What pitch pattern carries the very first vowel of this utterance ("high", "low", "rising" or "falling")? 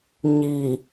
low